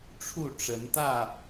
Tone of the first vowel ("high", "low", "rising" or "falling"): falling